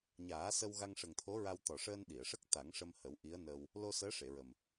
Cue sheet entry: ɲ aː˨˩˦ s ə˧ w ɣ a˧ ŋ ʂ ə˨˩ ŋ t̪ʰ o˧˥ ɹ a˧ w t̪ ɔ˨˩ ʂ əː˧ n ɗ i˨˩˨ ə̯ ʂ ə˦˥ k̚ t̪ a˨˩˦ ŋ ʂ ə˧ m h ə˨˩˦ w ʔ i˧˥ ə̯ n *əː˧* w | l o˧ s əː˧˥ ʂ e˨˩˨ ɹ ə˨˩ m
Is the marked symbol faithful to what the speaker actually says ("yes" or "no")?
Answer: yes